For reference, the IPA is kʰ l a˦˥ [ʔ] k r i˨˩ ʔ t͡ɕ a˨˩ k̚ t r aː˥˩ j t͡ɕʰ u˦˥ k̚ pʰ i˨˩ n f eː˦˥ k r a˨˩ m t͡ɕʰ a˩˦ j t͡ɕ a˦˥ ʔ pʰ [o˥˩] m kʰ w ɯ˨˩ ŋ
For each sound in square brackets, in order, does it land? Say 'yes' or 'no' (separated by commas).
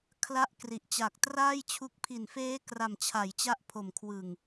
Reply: yes, no